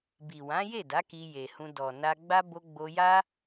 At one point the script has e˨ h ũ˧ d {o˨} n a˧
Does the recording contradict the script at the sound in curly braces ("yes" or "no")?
yes